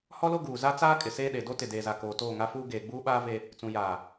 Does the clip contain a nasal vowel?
yes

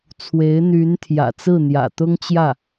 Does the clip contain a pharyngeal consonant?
no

